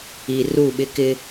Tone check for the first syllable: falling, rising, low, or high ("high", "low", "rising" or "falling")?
low